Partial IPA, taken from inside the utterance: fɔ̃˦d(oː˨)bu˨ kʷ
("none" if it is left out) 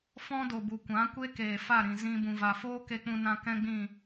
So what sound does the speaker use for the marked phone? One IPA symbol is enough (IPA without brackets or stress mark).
o˨